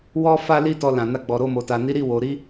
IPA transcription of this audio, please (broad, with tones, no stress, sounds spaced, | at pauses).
w ɔ˦ f a˦ l i˦ t ɔ˧ l ã˨ n a˧ ɡ͡b ɔ˨ ɾ o˧ m o˨ t a˨ n i˨˦ ɾ i˦˨ w o˨ ɾ i˧